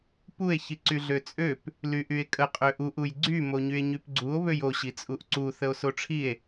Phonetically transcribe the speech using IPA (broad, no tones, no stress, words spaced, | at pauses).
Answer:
pue̯ çiǀyɮøt͡sʼøp | lyʔye̯kʼə qʼøʔuʔ ujɡ͡ǀy moɲye̯ɲypɡ͡ǀuo̯ βøjo ɕit͡sʼuʔǀu θəo̯soʈ͡ʂʰie̯